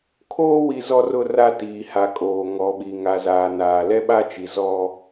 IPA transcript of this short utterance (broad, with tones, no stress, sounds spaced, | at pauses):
kʰ oː˦ w i˨ z ɔ˦ r ʊ˦ r a˦ t iː˨ h a˨ kʼ oː˨ ŋ ɔ˨ ɓ i˨ ŋ a˨ z aː˨ n aː˨ l ɛ˦ ɓ a˦ t͡ʃ i˨ z ɔ˦